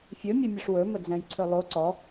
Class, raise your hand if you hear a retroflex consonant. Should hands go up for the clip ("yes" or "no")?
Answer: yes